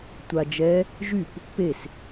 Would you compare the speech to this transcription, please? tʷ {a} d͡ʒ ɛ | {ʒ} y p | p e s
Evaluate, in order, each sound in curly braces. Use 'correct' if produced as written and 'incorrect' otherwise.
correct, correct

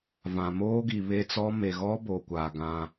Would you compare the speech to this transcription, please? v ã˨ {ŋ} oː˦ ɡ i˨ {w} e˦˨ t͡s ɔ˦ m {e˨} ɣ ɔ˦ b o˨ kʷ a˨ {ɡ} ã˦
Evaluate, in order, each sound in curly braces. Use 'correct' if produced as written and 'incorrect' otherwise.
incorrect: m, incorrect: β, correct, correct

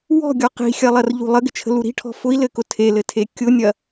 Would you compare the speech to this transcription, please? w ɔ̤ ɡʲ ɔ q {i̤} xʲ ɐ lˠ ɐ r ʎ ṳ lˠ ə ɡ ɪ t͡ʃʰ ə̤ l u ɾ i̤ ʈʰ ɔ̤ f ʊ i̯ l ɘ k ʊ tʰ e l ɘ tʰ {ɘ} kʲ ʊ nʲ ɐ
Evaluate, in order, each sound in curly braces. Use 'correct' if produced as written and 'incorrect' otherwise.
correct, incorrect: e

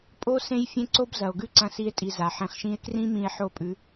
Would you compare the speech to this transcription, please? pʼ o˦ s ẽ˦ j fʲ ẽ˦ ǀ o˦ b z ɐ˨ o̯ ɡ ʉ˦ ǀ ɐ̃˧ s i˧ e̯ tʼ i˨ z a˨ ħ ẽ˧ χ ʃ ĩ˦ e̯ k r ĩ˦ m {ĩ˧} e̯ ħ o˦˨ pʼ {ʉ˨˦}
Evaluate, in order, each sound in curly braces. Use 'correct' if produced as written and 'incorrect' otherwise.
correct, correct

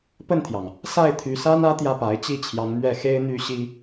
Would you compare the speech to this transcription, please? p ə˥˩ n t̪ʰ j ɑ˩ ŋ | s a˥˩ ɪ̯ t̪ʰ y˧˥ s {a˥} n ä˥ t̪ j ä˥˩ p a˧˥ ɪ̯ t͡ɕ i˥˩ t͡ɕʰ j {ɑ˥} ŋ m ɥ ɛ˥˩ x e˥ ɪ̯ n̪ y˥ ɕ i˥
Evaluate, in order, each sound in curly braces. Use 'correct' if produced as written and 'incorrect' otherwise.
correct, incorrect: ɑ˧˥

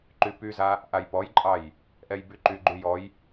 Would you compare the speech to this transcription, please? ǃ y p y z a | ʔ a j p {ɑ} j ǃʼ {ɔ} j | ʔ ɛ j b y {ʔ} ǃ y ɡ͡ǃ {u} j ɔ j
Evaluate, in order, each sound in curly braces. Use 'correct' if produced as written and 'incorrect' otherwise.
incorrect: ɔ, incorrect: ɑ, incorrect: none, incorrect: y

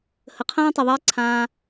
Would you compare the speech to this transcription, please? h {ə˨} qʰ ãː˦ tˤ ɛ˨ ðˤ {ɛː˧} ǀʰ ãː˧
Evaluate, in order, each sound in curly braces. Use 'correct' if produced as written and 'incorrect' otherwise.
correct, correct

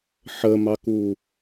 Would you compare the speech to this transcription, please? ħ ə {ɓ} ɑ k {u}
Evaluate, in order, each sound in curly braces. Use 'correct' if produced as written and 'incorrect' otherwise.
incorrect: m, correct

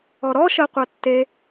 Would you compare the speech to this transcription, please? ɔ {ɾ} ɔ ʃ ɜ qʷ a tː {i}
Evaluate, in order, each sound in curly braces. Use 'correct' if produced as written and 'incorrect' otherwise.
correct, incorrect: e

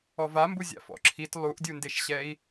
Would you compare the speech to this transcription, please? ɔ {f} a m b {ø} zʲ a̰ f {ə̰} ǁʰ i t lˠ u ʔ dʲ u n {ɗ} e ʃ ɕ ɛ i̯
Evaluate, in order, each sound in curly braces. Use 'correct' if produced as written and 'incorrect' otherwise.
incorrect: v, incorrect: u, incorrect: ɔ̰, incorrect: d

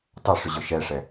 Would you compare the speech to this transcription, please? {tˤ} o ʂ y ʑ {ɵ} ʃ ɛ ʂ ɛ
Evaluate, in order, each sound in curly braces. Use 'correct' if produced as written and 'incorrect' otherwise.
correct, correct

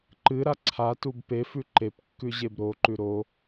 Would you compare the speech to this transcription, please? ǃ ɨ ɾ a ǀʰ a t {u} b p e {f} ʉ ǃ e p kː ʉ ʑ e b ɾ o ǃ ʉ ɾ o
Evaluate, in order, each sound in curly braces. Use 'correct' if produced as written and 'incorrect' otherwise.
correct, correct

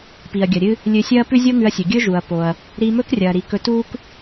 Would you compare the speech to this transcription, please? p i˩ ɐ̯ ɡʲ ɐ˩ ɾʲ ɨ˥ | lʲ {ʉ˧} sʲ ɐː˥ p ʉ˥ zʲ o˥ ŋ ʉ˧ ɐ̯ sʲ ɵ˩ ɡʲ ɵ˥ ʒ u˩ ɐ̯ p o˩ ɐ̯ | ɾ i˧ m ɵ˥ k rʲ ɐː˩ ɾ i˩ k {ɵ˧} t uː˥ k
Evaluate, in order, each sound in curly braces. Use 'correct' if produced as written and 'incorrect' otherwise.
incorrect: ɨ˧, correct

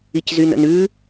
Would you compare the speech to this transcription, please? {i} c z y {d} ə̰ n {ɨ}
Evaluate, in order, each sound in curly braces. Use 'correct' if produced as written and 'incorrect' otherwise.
correct, incorrect: n, incorrect: ʉ

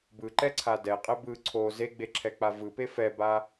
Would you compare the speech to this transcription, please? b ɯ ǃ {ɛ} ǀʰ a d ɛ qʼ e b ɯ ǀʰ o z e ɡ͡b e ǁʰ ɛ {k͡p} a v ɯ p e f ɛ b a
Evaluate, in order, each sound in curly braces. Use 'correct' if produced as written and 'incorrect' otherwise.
correct, correct

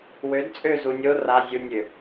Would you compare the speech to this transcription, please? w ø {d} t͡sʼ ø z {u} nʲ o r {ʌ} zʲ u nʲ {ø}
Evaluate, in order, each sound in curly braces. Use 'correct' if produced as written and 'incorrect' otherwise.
correct, correct, incorrect: a, correct

